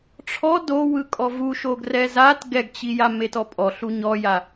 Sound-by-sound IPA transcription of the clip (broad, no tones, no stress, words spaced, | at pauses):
ʈ͡ʂʰɔ dowɯkʼɔ vuʃo ɡrɛzat ɡɛɡt͡ɕi jametɔpʼɔ ɬuɲɔja